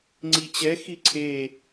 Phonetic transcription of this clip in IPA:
ŋ͡ǀ i t͡ɕ ɛ x i ǀʰ e

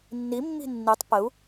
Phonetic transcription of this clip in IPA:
nː i mː i̤ nː i tˤ p ə u̯

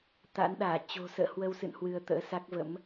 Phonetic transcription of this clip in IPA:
t̪ a̰˧˥ n ɗ aː˧˩ t͡ɕ o̤˨˩ s ə̰ː˧˨ h w ə˧ w s ɨ̰˧˨ n h w ɨ˧ ə̯ t̪ ə̰ː˧˥ s a˦˥ k̚ v ə̰˧˥ m

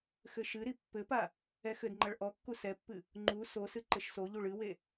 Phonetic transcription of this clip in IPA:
x ɘ ʃ ɨ ɾ i pː ɘ p a | ɛ x ɘ d ŋ͡ǃ ɐ ɭ ʔ ɔ kː u s ɛ pː ɨ | ŋ͡ǃ u s o s ɨ ǃ ɘ ʃ s o ʎ u ɭ ɨ w e

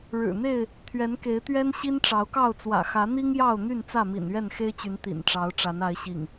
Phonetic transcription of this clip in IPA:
ɻ ɻ̩˨˩ n̪ e˥˨ ɪ̯ | t̪ʰ ɥ ɛ˨˦ n k e˨˦ ɪ̯ t̪ ɥ ɛ˦ n ɕ i˦ n ʈ͡ʂ ɑ˨˦ ʊ̯ k ɑ˥˨ ʊ̯ t͡s w ä̰˨˩ x ä˨˦ n̪ i˦ ŋ j ɑ˥˨ ʊ̯ n̪ y˥˨ n t͡s ä˥˨ m ḭ˨˩ n ɥ ɛ˥˨ n x e˦ ɪ̯ t͡ɕ y˨˦ n t̪ ḭ˨˩ n ʈ͡ʂ ɑ˨˦ ʊ̯ ʈ͡ʂ a˨˦ n a˨˦ ɪ̯ ɕ ḭ˨˩ ŋ

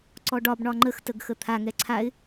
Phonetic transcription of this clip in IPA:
ǀ ɔ ɖ ɒ b ɳ ɒ ŋ͡ǃ ə x t ə ɡ x ə t̪ʰ a ŋ ɛ ǀʰ a ɪ̯

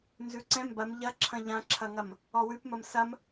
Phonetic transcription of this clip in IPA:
n z ʉ ǀ ɛ̃ m b ɐ m ʎ ɐ ǁʰ ɐ̃ ʎ ã ǁʰ ɐ ŋ ɐ m | ɔ w ʉ p m ɐ m s ɐ m

